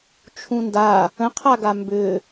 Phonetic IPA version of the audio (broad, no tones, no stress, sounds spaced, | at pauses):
t͡ʃʰ ũ n d a | ə̃ qʰ a ɡ a m b ʏ